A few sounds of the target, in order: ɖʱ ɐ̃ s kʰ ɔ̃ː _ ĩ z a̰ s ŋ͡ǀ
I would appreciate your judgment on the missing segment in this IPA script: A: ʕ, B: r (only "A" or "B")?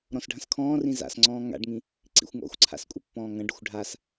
B